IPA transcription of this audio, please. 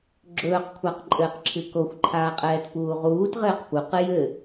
ɡ͡ǁ ɵː q kʷʰ a q ǃʼ ɘː q ǁʰ ɨ k o xʷ ǃʰ aː qʼ ɛː t p uː ʁ uː t ʁ ɘː q p u q ɨ j ɘ

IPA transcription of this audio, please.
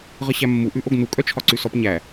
ʁ ə ɕ æ mː u ʔ ʉ ʔ o ɡ n u kʼ œ t͡ʃʰ ɒ ǀ ʉ s ɔ p ɲ æ

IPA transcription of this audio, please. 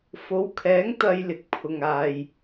f o˨˥ w kʰ ɛː˨˥ ŋ t̪ ɐ˧ j l ɪ˨ k̚ pʰ ʊ˨ ŋ aː˨ j

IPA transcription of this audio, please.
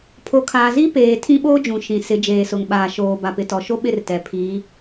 pʰ o˨ kʰ aː˨ z i˦ p eː˨ tʰ ĩ˦ ɓ oː˦ d͡ʒ ũ˨ ʃ ĩ˨ s ɪ˨˦ d͡ʒ eː˨ s ʊ˨ ŋ ɓ aː˨ ʃ oː˨ b a˨ p ɪ˨ t ɔ˨ ʃ o˦ ɓ ɪ˦˨ r t ɛ˨ pʰ i˨˦

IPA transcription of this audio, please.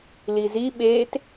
l i z i ɓ eː t

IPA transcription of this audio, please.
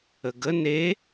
ə ɡ ə n e

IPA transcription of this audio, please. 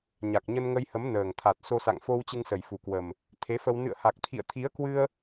ɲ a˨˩ k̚ ɲ ə˧ n ŋ ə˧ j h ə˨˦ m n əː˨˩ ŋ t̪ʰ a˨˩ t̚ s o˧ s a̰˧˨ ŋ f o˧ w t͡ɕ ɨ˧ ŋ s ə˨˩ j f u˨˩ k w ə˨˩ m | t̪ʰ e˨˦ f ə˧ w n ɨ̰˧˨ ə̯ h a˨˩ k̚ t̪ʰ ḭ˧˨ ə̯ t̪ʰ i˨˦ ə̯ k w ɨ˧ ə̯

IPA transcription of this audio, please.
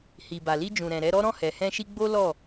h i˨ b a˨ l i˧ d͡ʒ ũ˨ ɾ ɛ̃˨ ɾ ɛ˨˦ ɾ ɔ˦ ɾ ɔ̃˦˨ h ɛ˨ h ɛ̃˧ ʃ i˧ ɡ͡b o˦ l ɔ˦˨

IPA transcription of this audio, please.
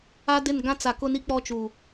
a˦ d ɪ˦˨ n ɡ ã˦ t͡s a˨ k ʊ˦ n i˦ k͡p ɔ˦ t͡ʃ u˨

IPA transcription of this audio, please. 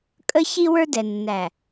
kʼ ə˦ ç i˦ w ə˞˦ d ɛ˨ nː æ˨

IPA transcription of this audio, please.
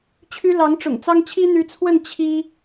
t͡ɕʰ y˥ l ɑ˧˥ ŋ ʈ͡ʂ ʊ̰˨˩ ŋ t͡s ɑ˥ ŋ t͡ɕʰ i˥ n̪ y˧˥ t͡sʰ w ə˥˩ n t͡ɕʰ i˥

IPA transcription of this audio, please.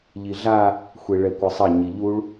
ʎ i ɮ a | xʷ e ɭ ɛ kʷ ɘ sˤ ɐ ɲ i ʎ u ɭ

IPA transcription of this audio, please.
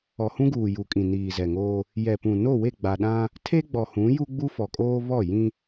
ɔ˨ h ũ˦ ɡ uː˨ j u˨ kʼ ĩ˨ n iː˨ z ɛ˨ ŋ oː˦ | j ɛ˨ p ũ˨ n o˦˨ w e˦˨ ɡ͡b a˨ ɗ ã˦ | tʰ e˦ ɡ͡b ɔ˨ h ũ˨˦ j u˦ ɡ͡b u˦ f ɔ˨ kʼ oː˦ β ɔ˦˨ j ĩ˦

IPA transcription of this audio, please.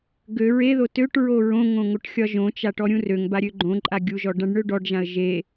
ɡ ø ɹ e ð o t ø ʈ ɹ o ɹ õ ŋ õ ŋ o ʈ xʲ ɒ ʒ õ t͡ʃ a ʈ ɔ ɾʲ ũ r ø ŋ b a ɾʲ ø ɡ͡ǃ õ ǃʼ a ɡʲ u ʒ ɔ ɖ ã ɖ ɳ ø ɖ ɔ ɖ ʒ ã ə̯ ʒ e

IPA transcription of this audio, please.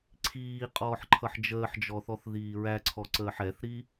ǀʰ iː qʼ ɔː ħ ǃʰ ʌ ħ d͡ʒ əː ħ d͡ʒ ɔ θ ɔ θ ð iː ɹ æ ǀʰ ɔ ǀ əː ħ ɛ θ ɾ i

